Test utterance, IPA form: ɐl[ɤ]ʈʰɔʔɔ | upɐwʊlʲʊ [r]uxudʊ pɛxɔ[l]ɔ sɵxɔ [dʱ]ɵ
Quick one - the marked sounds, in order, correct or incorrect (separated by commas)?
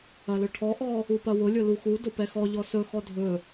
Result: incorrect, incorrect, incorrect, correct